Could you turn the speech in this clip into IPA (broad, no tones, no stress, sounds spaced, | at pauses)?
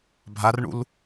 bʱ a r ɳ ṵ l